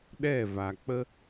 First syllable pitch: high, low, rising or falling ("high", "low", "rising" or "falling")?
falling